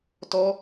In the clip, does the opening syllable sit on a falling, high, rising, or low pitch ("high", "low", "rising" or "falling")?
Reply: high